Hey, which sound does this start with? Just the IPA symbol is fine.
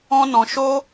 ɔ̃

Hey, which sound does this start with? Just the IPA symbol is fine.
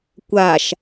kʷ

